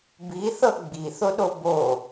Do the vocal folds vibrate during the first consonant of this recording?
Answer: yes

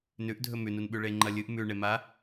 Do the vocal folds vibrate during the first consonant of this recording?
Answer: yes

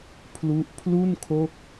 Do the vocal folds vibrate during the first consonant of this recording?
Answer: no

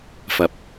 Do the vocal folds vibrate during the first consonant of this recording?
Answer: no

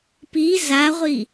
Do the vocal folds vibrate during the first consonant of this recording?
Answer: no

